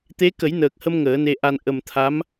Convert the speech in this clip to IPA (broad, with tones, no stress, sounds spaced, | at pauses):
t̪ e˧˥ k ə˨˩˦ j n əː˨˩ k̚ h ə˧ m ŋ əː˨˩˦ n e˧ ʔ a˧ n ʔ ə˨˩ m t̪ʰ a˧˥ m